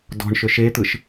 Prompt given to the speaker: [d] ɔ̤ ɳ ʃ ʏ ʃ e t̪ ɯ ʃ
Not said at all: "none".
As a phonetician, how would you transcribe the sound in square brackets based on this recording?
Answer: d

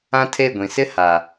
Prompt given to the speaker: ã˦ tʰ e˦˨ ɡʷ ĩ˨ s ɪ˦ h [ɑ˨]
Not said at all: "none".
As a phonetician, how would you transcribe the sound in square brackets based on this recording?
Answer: a˨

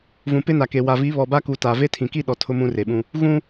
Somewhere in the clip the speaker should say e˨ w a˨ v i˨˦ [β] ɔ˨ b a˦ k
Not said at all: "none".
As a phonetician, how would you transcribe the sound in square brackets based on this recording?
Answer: β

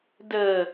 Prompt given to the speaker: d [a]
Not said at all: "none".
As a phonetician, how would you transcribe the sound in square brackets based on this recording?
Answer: ə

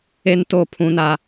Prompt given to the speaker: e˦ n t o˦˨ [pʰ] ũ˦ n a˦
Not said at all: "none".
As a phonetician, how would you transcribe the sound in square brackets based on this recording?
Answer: pʰ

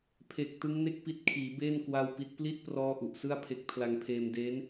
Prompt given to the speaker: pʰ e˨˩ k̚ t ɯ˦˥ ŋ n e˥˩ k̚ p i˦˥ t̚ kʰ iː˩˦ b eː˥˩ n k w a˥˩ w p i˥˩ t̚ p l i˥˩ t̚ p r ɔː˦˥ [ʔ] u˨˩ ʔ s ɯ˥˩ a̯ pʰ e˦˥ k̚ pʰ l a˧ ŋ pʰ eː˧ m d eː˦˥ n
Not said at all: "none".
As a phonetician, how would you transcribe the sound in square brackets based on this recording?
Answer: ʔ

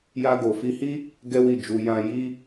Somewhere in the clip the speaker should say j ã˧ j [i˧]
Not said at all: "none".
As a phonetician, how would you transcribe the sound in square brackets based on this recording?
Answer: i˦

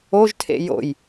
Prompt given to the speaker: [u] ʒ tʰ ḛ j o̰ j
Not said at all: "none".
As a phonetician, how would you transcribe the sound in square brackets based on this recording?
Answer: o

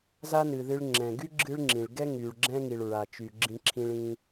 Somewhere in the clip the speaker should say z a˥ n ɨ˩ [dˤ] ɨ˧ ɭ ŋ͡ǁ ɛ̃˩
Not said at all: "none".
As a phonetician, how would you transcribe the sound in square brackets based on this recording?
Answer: ð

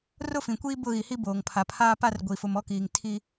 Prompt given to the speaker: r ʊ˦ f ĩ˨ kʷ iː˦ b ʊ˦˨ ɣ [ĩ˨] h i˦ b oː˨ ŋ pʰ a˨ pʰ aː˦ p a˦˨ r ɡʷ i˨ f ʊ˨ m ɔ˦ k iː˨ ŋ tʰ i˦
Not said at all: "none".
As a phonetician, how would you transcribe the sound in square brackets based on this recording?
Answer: i˨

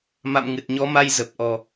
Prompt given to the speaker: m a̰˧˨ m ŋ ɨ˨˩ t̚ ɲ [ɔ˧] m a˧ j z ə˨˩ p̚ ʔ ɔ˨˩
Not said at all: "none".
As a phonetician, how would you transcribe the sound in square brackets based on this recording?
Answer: ɔ˨˦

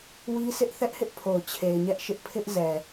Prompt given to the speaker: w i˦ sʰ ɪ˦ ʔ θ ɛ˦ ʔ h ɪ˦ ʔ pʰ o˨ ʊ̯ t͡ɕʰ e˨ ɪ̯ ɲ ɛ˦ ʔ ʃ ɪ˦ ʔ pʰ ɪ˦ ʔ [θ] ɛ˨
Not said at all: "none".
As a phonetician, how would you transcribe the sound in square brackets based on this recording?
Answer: z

